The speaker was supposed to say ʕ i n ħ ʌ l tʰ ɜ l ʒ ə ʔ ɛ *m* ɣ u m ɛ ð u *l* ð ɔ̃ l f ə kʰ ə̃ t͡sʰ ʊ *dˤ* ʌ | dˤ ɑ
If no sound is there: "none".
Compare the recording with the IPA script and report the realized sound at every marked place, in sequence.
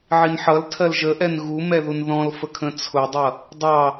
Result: n, n, dˤ

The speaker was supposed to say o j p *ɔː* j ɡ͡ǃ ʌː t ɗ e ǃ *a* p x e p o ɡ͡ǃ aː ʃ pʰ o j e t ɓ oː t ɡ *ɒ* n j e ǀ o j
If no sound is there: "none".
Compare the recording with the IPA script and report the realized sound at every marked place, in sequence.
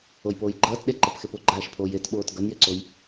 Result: oː, ʌ, ʌ

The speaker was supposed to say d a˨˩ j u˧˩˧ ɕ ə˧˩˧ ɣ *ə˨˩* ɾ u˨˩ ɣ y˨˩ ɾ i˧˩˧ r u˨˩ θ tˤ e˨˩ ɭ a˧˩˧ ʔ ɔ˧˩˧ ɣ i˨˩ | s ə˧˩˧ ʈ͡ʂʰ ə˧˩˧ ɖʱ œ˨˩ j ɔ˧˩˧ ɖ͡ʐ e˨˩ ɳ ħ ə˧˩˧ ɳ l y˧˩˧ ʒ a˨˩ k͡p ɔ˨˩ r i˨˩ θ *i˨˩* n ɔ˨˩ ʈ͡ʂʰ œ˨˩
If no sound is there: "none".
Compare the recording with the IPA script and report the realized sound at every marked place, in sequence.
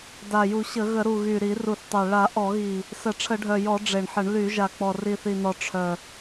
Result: ə˧˩˧, i˨˩

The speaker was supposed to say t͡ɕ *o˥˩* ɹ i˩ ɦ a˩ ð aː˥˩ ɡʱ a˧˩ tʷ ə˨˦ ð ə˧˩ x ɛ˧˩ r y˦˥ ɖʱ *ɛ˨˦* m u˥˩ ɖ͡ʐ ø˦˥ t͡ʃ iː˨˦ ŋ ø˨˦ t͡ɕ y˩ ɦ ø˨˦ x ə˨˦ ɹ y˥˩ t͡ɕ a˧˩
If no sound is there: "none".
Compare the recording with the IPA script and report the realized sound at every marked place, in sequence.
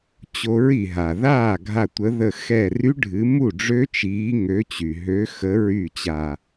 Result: o˨˦, ɨ˨˦

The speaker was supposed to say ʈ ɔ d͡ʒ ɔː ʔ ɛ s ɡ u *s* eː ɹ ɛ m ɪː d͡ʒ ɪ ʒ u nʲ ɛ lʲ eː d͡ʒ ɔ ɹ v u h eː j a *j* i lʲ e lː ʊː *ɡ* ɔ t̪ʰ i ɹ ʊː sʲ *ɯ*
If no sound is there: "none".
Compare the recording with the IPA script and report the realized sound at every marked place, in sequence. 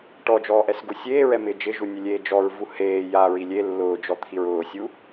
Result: sʲ, ɹ, d͡ʒ, u

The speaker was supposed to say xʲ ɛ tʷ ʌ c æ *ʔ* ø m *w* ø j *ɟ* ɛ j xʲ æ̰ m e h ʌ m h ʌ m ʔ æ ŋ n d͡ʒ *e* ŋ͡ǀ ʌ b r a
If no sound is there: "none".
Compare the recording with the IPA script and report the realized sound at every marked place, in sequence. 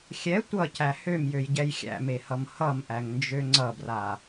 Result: h, j, ɟ, ø

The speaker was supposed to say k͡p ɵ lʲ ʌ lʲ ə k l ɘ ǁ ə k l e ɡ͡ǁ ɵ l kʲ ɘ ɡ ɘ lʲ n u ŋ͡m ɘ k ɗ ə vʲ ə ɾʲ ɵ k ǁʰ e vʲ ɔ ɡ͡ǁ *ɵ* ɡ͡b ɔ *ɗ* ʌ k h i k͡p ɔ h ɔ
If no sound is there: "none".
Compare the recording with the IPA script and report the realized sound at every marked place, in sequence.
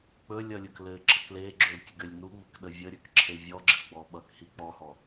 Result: ə, ɓ

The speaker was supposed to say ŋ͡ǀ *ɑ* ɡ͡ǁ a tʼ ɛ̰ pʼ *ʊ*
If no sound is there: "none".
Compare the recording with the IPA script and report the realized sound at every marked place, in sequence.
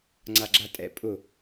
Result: a, ʊ

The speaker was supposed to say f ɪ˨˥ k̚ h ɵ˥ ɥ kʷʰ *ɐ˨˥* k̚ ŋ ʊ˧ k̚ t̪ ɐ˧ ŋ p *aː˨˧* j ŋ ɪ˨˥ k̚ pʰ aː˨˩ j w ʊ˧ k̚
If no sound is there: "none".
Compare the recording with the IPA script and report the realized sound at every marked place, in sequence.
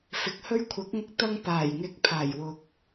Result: ɐ˨˥, aː˨˩

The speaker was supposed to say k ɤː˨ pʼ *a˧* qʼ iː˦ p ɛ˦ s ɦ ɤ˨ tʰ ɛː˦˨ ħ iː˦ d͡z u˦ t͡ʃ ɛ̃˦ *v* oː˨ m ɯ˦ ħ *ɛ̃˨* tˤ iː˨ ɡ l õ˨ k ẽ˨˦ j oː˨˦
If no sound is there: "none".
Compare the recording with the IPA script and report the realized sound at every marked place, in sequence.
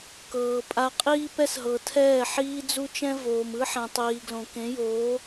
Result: a˧, v, ɛ̃˨

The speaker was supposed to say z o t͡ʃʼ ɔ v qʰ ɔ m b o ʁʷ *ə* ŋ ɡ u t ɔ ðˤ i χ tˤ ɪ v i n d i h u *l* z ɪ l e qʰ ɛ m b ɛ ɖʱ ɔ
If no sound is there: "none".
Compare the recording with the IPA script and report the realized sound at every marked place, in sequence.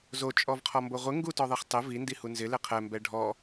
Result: ɪ, n

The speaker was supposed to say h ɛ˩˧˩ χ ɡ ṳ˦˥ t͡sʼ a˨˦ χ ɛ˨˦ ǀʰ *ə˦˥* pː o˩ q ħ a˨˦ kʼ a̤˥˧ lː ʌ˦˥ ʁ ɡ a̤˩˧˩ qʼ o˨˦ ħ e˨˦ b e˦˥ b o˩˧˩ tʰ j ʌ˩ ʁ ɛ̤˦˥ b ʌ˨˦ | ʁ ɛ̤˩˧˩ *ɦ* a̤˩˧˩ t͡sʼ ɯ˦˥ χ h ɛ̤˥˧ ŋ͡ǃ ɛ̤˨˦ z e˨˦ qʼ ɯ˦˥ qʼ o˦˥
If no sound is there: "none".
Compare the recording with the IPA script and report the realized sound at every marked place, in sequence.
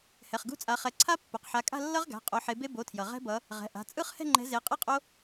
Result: a˦˥, ʔ

